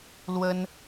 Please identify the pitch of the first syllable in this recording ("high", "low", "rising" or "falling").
high